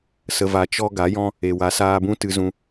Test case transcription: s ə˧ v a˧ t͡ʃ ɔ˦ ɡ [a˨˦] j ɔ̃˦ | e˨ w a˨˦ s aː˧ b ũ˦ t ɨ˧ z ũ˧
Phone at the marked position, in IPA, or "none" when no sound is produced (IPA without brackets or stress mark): a˨˦